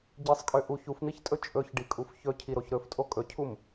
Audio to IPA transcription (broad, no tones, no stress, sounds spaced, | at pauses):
ɟ i sˤ kʼ ø ʔ u ç u f n̪ i ç tʼ ɵ t͡ʃʼ ɵ ç ɖ i kʼ u f ç ɵ cʰ i ɾ o ç ɾ ɵ f tʼ o kʼ ɵ cʰ u m